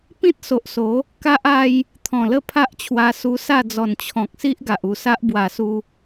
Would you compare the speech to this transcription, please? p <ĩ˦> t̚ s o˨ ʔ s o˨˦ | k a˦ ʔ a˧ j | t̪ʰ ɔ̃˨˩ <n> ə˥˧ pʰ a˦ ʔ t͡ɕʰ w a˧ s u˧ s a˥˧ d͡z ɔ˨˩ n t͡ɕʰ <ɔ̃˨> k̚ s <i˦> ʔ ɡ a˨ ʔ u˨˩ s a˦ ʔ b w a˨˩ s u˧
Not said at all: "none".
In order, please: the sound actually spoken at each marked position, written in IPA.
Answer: ĩ˦, l, ɔ̃˨, i˦

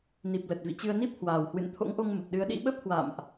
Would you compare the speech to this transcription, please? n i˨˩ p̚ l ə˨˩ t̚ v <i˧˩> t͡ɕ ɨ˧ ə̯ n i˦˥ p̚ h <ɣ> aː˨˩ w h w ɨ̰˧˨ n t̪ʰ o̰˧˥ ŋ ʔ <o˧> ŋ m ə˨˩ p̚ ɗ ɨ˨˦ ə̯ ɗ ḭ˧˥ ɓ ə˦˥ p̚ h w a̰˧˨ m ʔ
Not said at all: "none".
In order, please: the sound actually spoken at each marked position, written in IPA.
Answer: ḭ˧˨, w, o˧

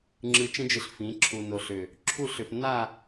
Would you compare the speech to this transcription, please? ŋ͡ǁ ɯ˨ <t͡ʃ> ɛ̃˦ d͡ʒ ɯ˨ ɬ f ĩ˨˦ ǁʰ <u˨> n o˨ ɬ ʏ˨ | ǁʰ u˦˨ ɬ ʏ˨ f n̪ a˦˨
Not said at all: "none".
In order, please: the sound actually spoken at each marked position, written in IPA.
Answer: t͡ʃ, u˨

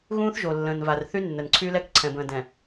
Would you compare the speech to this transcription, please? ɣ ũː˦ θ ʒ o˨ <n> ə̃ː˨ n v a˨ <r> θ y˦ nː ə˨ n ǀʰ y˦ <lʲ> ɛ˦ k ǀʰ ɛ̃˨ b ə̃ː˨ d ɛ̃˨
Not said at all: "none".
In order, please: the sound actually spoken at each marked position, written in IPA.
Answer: lː, r, l

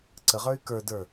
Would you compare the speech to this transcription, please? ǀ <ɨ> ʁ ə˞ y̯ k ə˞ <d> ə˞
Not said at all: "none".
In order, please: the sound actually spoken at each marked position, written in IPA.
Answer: ə, d

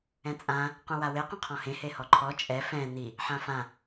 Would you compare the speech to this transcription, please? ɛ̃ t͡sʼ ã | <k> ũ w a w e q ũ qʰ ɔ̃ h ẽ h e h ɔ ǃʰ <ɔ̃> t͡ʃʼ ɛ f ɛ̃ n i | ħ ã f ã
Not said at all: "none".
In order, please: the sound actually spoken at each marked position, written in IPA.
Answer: q, ɔ

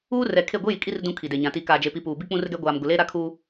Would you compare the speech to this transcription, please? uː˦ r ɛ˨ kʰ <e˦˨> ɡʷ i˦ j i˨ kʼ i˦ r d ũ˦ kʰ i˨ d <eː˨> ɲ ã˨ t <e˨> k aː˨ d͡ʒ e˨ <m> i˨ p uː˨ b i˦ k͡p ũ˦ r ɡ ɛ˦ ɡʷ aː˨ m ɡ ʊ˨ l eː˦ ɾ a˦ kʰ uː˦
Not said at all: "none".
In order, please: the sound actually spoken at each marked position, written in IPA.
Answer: e˦˨, e˨, i˨, p

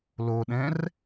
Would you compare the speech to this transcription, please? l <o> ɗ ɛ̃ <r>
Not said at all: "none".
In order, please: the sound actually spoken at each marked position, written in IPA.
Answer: o, r

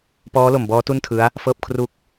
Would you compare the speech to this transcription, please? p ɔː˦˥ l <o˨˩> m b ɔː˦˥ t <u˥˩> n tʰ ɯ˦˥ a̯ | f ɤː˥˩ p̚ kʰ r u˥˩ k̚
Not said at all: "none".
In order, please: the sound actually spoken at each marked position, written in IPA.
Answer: o˨˩, u˥˩

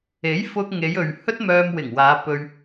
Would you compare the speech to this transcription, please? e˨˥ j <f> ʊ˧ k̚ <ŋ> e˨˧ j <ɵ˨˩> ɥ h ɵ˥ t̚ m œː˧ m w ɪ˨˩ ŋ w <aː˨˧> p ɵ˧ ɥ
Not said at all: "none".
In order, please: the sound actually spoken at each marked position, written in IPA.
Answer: f, ŋ, ɵ˨, aː˨˧

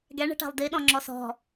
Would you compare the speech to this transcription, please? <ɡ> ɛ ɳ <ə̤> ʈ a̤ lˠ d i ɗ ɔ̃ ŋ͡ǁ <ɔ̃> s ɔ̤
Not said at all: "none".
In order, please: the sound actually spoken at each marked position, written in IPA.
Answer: ɡ, ə̤, ɔ

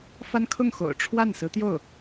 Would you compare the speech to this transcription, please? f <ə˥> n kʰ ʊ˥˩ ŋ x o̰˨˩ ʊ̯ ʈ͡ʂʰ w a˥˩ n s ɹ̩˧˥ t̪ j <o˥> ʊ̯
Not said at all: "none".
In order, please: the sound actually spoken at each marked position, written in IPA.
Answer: a˥, o˥˩

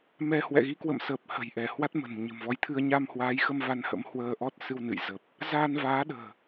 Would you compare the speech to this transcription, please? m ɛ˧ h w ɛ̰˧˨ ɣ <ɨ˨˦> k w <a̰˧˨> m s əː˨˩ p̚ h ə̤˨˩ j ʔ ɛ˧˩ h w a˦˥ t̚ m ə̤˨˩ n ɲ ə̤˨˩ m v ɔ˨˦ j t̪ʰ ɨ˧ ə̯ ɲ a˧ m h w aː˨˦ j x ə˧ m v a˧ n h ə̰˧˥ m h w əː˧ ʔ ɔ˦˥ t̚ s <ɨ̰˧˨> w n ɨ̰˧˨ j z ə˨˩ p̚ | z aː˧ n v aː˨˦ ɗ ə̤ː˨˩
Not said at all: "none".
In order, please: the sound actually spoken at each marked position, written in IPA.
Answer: i˨˦, ə̰˧˨, ɨ˧

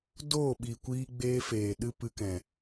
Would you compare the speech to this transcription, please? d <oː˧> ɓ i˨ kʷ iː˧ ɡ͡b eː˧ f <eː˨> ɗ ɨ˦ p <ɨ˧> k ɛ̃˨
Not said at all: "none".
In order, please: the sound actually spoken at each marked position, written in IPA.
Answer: oː˦˨, eː˨, ɨ˧

